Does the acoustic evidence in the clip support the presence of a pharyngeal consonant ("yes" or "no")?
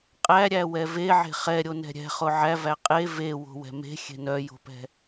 yes